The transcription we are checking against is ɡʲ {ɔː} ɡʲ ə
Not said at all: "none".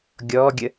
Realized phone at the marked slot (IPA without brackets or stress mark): ɔː